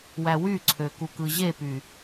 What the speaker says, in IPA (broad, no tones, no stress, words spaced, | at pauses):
wæwyǀʰø kukɯʑepy